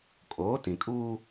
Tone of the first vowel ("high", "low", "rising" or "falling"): rising